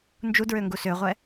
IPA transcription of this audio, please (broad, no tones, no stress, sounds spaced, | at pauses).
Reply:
n d͡ʒ u d ɹ ø ŋ ɡ u s ø ʁʷ ɛ